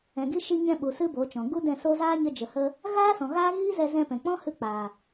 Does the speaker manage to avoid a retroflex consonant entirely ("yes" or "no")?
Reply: yes